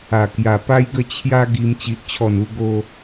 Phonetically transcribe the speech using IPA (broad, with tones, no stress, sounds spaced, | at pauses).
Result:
a˨˩ k j a˨˩ p a˦ j ɡ ə˥˧ t͡ɕʰ j a˦ ɡ i˧ m t͡ɕ i˨ ʔ t͡ɕʰ ɔ˨˩ n u˧ ɡ o˧